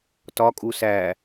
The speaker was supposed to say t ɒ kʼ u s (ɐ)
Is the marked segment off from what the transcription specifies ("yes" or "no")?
yes